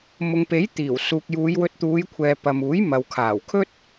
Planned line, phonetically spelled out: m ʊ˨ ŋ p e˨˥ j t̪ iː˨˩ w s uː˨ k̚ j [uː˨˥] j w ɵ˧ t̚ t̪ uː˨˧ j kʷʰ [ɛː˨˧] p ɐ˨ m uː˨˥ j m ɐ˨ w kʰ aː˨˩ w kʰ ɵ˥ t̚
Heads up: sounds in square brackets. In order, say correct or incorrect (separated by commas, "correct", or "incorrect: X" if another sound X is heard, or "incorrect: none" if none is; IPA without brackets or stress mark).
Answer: incorrect: uː˨˧, incorrect: ɛː˨